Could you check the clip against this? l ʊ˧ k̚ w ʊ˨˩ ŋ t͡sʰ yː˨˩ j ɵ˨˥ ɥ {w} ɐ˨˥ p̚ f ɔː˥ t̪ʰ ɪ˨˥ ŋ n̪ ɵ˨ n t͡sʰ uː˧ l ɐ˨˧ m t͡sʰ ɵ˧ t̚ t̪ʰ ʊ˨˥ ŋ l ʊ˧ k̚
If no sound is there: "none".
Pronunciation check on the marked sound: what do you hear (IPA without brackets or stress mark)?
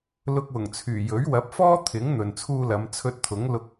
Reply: w